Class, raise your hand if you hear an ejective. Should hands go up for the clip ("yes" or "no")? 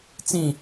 no